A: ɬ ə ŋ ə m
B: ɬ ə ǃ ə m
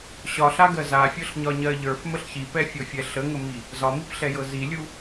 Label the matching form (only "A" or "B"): A